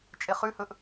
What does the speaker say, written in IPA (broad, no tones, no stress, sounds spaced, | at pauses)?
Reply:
t͡ʃʼ e χ ʉ h ɵ ʔ